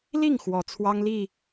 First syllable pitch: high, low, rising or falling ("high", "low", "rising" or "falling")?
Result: falling